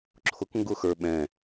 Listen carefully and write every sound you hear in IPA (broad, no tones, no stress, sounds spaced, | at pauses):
ǁʰ ʊ k ŋ ɡ ʊ x ə˞ ɓ ɛ̃